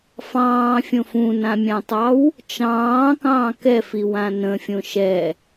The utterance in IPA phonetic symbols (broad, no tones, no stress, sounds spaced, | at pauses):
f ɑ̃ː fʲ õ f ũ n ã mʲ ã tˤ ɑ w | t͡ʃ ɑ̃ː k ɑ̃ː k ɛ f i w ã n ə̃ fʲ õ ʃ ɛ